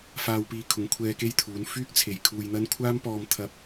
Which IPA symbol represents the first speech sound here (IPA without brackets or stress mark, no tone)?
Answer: f